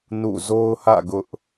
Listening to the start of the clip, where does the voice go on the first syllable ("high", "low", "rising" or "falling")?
falling